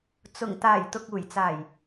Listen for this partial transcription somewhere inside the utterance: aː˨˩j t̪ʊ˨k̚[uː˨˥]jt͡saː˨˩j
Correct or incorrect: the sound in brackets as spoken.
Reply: incorrect: uː˨˩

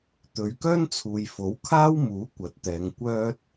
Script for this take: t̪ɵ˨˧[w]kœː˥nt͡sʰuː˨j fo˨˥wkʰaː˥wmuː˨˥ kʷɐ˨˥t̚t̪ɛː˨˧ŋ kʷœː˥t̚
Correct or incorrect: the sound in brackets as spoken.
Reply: incorrect: ɥ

